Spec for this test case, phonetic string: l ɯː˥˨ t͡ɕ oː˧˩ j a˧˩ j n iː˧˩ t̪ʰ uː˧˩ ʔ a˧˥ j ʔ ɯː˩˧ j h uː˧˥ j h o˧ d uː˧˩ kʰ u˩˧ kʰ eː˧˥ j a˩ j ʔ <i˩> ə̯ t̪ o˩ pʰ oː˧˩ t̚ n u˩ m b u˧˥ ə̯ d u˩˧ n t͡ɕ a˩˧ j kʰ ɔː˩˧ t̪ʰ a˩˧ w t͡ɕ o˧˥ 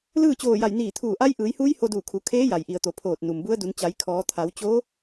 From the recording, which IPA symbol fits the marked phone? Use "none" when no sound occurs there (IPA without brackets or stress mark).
i˩